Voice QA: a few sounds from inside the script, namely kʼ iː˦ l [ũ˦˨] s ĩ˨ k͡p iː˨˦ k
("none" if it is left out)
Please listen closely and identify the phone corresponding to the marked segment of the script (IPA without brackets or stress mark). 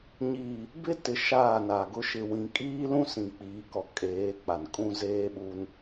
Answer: ũ˦